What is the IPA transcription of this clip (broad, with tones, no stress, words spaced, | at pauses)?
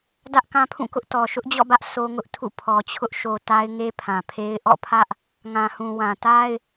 dä˦ʔkã˦pʰũ˦˨kʊ˦ʔ tɔ˨ʃʊ˦ʔd͡ʑɔ̰˦˨bä˦ʔ so˦ ŋʊ˦ʔtʰṵ˦˨ pʰɔ˨t͡ɕʰʊ˦ʔ ʃo˨ ta˦ɪ̯ŋe˦pʰã˨pʰe˦ɪ̯ ʔɔ̰˦˨pʰä˦ʔ | ŋã˨hũ˨wã˨ ta˦ɪ̯